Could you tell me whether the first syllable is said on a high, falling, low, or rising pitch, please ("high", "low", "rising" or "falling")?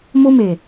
high